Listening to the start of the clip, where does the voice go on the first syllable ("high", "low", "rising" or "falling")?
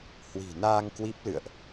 low